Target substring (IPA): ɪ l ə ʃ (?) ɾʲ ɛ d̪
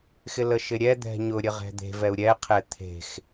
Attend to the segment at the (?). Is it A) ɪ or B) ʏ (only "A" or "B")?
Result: A